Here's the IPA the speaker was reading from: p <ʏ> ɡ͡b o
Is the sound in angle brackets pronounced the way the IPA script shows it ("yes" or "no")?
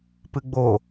no